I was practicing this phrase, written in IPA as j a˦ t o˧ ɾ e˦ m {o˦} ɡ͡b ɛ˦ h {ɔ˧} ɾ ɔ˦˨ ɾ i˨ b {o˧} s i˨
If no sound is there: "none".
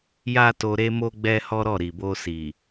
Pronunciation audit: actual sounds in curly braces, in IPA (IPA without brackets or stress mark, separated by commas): o˦, ɔ˦, o˧